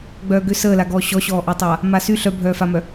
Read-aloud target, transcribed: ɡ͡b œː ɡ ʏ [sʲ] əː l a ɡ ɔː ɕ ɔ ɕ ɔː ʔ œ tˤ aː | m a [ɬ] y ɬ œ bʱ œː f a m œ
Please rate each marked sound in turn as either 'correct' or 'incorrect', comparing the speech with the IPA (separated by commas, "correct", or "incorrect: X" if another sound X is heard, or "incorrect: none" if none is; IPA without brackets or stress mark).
incorrect: s, incorrect: s